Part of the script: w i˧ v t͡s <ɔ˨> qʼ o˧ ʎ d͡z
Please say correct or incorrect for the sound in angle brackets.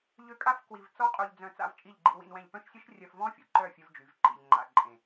incorrect